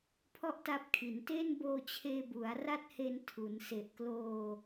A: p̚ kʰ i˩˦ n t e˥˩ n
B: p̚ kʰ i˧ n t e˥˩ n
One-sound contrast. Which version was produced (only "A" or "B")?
A